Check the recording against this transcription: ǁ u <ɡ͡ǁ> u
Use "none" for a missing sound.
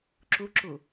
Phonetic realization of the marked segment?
ǁ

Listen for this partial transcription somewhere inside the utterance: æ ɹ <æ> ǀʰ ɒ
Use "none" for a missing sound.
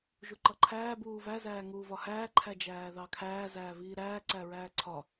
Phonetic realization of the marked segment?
æː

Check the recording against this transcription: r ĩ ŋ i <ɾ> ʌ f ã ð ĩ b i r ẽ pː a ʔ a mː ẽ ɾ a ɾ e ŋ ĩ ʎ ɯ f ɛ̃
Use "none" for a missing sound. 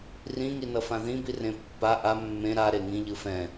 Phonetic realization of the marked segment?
n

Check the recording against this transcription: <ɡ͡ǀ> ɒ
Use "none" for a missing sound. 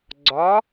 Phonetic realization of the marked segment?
ɡ͡ǀ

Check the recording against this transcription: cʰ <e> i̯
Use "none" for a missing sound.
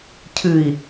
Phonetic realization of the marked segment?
ɨ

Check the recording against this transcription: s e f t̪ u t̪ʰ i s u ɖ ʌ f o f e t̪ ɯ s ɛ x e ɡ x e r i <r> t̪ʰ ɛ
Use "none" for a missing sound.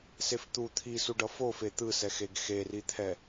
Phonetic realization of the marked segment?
none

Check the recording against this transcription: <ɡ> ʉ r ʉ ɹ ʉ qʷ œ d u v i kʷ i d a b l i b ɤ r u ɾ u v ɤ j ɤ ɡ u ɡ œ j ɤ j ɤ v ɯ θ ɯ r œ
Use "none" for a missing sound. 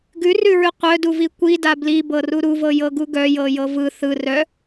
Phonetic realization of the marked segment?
ɡ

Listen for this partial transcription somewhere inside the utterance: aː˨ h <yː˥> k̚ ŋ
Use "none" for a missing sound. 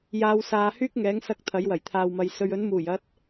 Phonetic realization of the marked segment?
yː˥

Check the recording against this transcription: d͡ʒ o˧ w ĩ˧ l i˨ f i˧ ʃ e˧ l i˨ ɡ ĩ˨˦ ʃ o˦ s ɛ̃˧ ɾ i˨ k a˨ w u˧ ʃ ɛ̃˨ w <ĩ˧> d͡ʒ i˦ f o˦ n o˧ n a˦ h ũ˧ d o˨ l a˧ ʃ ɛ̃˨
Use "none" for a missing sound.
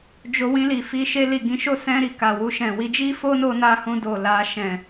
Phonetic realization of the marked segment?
i˧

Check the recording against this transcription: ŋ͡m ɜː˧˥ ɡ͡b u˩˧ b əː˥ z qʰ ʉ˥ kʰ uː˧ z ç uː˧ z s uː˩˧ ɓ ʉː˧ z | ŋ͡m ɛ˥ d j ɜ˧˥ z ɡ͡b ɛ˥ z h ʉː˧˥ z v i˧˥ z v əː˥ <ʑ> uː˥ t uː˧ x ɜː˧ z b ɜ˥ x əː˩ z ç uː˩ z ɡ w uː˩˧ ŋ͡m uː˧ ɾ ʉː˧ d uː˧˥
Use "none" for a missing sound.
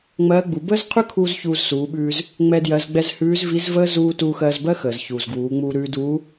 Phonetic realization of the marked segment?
z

